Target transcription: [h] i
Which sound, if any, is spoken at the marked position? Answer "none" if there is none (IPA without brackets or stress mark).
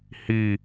h